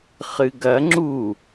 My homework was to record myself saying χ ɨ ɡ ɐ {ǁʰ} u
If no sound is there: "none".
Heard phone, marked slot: ŋ͡ǁ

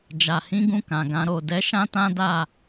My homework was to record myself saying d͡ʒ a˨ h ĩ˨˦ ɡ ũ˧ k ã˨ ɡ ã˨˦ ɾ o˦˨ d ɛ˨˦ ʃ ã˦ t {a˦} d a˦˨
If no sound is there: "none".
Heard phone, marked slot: ã˦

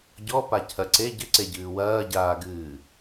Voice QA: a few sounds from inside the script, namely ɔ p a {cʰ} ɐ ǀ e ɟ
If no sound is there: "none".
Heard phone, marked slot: cʰ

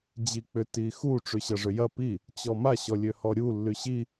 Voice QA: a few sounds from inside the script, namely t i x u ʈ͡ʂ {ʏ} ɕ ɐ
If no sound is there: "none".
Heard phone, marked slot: y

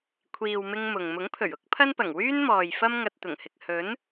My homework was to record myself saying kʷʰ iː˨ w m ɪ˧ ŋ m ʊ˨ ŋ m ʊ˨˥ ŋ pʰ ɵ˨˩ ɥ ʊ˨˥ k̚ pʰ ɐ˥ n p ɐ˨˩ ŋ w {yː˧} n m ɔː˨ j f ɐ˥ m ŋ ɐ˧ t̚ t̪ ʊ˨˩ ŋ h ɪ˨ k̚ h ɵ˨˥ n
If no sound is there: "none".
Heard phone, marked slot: yː˥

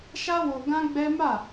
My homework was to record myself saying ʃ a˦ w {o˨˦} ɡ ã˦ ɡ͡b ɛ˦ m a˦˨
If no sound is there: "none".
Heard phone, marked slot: o˧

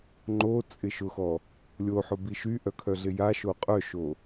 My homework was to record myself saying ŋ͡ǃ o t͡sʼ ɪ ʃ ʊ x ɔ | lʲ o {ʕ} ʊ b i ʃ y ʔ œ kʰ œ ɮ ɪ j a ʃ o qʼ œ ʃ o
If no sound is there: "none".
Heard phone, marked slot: ħ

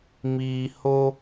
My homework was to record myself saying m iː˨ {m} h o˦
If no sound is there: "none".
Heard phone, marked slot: none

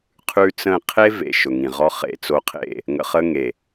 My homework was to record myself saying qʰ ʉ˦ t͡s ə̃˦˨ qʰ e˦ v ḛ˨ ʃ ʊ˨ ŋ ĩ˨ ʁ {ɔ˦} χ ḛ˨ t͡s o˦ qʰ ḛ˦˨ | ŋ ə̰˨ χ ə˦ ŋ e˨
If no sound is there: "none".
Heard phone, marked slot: ɔ˦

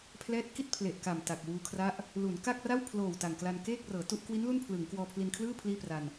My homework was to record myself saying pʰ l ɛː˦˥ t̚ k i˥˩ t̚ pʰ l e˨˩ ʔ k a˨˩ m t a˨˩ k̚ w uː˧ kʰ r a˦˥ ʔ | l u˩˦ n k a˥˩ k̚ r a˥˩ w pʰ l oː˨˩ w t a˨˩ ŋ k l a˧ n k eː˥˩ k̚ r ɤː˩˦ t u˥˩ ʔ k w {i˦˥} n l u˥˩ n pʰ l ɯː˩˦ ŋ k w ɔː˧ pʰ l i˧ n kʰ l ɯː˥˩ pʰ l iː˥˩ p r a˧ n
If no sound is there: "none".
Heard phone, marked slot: i˦˥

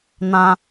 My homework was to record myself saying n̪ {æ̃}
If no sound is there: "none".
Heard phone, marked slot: ã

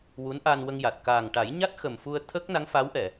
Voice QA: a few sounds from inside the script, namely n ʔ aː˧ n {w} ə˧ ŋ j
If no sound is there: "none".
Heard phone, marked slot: w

